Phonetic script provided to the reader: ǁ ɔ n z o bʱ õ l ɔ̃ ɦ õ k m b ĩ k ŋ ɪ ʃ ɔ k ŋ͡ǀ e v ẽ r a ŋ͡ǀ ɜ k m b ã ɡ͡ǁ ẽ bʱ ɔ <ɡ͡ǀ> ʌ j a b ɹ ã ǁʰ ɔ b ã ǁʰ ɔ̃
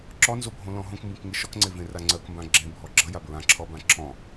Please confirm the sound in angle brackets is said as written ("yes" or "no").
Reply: no